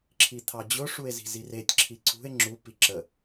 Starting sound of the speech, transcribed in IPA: ǁʰ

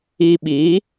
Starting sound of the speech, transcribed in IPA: i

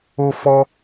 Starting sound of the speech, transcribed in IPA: o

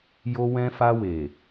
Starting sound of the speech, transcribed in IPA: j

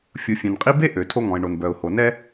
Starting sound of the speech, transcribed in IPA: fʲ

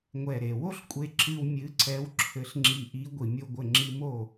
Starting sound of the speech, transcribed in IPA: ŋʷ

